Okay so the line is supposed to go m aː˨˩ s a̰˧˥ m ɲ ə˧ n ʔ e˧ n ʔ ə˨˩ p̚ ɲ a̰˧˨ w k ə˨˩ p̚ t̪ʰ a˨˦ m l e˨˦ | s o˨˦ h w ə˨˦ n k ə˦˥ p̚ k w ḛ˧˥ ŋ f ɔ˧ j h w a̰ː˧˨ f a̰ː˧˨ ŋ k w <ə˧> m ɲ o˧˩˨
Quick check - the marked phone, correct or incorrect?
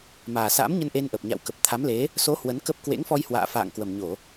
incorrect